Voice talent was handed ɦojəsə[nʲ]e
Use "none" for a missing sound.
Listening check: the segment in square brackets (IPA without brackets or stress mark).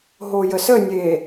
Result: nʲ